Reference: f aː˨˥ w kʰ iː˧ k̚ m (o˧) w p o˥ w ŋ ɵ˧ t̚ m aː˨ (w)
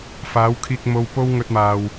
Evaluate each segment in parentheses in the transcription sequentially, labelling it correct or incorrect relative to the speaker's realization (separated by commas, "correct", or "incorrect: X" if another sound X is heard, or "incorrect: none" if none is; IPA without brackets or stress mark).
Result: correct, correct